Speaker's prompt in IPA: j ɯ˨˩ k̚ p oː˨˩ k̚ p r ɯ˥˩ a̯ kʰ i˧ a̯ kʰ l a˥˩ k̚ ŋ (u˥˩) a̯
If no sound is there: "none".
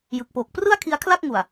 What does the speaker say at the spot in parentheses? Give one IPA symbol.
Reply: u˨˩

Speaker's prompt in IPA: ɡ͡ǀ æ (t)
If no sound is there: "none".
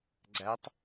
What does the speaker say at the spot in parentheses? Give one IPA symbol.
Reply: tˤ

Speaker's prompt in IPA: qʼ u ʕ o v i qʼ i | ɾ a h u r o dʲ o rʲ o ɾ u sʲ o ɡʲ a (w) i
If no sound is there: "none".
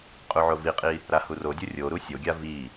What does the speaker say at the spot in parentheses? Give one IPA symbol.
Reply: v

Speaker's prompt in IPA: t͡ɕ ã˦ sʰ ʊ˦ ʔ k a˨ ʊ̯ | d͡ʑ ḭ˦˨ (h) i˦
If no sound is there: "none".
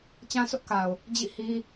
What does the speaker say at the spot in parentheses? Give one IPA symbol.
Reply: h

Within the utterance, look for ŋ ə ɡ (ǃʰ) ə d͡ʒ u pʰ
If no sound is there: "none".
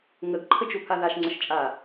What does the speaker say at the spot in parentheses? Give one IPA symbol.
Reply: ǃʰ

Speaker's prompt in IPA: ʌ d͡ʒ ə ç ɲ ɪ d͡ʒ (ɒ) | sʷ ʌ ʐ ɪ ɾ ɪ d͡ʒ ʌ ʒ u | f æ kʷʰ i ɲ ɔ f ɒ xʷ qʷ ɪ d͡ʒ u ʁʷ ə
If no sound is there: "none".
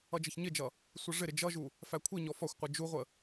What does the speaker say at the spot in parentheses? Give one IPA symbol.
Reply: ʌ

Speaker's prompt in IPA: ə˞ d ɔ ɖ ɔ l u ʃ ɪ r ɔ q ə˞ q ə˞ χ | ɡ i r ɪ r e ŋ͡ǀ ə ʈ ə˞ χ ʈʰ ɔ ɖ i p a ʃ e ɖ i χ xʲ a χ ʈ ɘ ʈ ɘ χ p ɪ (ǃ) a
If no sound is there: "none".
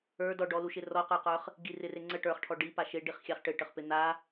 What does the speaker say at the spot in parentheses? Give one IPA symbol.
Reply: n̪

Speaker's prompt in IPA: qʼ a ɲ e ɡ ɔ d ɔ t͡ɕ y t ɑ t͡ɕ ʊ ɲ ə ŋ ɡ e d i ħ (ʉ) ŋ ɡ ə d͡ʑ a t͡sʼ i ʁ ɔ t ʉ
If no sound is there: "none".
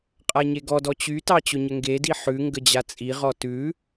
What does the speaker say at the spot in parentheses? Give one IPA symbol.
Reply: ʉ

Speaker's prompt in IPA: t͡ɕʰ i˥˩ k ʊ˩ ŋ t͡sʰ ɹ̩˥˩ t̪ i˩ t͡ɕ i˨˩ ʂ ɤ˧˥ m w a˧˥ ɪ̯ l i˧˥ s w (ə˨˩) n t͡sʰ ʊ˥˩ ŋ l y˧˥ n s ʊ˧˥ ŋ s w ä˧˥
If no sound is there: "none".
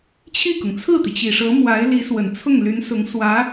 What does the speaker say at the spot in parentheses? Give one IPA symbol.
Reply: ə˨˩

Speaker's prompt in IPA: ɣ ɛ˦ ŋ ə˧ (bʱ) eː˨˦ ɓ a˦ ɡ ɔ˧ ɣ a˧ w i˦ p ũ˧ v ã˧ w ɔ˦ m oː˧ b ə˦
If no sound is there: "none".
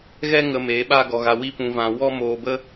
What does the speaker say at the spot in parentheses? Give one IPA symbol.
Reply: m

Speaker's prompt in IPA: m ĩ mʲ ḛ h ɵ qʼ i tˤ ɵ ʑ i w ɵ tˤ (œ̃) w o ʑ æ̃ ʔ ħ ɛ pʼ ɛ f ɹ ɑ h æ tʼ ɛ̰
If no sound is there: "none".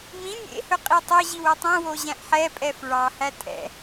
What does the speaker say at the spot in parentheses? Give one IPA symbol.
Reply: œ̃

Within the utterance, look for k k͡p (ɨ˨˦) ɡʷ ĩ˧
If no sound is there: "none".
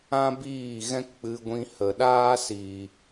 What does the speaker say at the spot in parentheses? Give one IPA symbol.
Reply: ɨ˧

